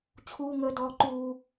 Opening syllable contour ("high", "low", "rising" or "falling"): high